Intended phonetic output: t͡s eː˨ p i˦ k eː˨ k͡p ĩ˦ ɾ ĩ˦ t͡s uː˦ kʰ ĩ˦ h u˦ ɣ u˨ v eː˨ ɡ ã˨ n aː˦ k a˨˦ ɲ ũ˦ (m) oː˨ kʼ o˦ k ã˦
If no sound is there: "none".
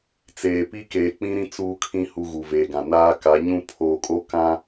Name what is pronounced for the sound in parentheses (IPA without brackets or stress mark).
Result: pʰ